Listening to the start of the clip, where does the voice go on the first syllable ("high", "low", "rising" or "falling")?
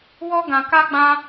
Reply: high